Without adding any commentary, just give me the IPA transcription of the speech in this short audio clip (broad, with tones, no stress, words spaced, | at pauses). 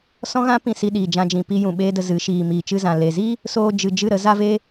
sɔ̃˦ɣã˦pĩ˧ si˧ɗiː˨d͡ʒã˧d͡ʒĩ˨ pi˧ jũ˨ɓeː˦də˧zɨ˨˦ ʃiː˨ miː˨t͡ʃɨ˧zã˨ le˨zi˦ | soː˧d͡ʒɨ˨ d͡ʒɨ˦˨ɾə˨˦ za˧ve˧